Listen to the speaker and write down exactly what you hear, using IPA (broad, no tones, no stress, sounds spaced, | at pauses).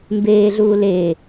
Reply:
m b eː ɮ uː l e